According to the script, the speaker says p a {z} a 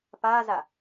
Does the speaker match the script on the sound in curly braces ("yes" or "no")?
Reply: yes